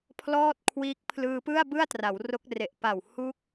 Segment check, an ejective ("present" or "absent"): absent